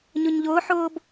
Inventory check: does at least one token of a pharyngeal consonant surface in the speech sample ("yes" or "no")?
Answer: yes